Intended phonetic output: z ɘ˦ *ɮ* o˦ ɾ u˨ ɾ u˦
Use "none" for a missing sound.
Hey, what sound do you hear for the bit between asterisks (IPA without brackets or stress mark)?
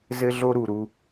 ɮ